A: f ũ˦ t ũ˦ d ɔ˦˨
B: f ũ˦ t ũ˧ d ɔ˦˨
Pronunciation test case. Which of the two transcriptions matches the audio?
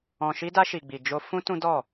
A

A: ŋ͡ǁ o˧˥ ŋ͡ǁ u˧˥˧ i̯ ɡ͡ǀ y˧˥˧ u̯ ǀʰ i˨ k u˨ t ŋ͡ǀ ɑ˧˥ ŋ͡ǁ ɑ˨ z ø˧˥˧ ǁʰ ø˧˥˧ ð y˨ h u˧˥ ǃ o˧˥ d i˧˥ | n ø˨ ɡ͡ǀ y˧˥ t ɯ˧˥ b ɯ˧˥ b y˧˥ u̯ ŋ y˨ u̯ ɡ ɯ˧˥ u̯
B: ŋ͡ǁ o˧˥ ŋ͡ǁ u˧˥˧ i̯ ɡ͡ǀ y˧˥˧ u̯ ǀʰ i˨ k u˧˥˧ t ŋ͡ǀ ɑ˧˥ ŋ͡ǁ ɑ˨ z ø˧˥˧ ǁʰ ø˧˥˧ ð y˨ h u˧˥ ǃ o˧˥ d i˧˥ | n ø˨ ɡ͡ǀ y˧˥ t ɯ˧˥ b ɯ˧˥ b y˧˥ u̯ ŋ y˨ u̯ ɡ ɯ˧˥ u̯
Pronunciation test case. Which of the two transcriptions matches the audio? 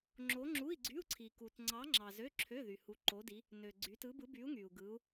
A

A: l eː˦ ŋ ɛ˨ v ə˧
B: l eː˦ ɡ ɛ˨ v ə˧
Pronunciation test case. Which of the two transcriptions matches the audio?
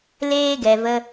B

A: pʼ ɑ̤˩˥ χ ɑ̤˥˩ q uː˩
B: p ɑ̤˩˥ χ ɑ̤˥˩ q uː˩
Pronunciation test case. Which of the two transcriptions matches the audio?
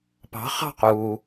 B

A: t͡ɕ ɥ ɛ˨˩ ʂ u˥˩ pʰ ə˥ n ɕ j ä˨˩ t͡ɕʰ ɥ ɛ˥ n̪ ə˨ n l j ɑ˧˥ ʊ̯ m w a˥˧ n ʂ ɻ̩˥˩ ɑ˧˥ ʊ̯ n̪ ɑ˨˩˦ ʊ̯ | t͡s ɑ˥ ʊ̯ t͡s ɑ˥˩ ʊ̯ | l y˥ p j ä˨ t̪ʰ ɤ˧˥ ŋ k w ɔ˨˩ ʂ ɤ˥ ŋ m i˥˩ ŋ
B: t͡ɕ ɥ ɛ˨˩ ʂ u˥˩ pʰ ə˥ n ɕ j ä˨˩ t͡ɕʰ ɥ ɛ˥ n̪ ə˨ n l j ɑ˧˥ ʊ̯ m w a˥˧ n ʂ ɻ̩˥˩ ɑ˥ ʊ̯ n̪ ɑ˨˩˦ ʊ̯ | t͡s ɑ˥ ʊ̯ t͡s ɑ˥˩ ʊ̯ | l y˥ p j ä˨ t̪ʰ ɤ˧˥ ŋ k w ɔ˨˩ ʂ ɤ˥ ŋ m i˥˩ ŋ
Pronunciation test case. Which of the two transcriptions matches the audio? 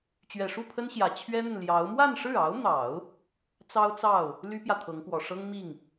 A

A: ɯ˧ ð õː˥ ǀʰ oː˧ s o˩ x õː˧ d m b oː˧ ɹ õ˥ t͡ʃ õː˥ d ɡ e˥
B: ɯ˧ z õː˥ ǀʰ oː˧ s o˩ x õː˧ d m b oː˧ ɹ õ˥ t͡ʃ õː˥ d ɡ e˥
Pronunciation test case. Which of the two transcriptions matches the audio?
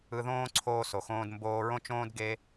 A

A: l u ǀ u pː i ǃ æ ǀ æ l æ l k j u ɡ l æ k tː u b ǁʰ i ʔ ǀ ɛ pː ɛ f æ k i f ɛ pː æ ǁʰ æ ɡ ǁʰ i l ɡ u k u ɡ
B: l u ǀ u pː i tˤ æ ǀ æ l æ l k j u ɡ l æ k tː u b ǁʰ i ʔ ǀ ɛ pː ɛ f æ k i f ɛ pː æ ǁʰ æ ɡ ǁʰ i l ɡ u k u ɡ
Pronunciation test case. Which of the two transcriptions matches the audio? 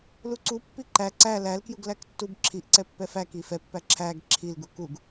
A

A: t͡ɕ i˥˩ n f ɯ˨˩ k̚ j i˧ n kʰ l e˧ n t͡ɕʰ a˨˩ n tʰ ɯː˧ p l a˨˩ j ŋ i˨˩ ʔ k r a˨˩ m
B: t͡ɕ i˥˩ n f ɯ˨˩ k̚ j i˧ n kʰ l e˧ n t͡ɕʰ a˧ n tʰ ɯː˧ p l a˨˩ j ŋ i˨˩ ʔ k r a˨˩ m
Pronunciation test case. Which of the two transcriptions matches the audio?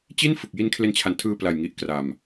A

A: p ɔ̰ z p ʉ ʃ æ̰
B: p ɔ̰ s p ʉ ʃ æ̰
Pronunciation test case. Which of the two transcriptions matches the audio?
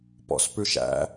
B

